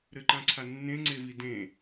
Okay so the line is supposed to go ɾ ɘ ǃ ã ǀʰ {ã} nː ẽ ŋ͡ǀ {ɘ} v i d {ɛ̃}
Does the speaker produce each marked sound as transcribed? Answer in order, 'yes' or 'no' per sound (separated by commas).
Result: no, no, no